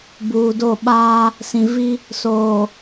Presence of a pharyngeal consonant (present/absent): absent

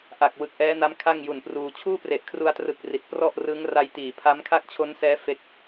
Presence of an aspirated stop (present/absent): present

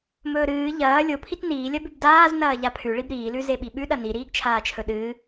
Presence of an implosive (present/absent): present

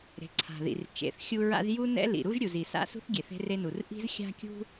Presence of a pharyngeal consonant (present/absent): absent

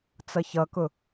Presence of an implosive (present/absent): absent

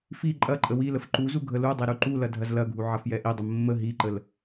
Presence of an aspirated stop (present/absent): absent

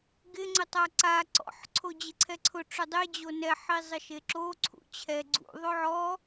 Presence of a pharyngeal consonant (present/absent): present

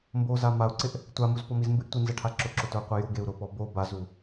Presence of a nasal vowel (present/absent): absent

